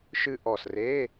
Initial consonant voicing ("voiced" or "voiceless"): voiceless